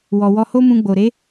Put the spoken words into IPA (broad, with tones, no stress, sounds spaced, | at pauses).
w ɔ˨ w ɔ˧ h o˦ m ũ˧ ɡ͡b o˨ ɾ e˨˦